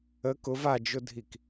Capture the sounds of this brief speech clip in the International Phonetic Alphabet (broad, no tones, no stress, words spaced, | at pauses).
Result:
ə kʊv ad͡ʒʊdʱik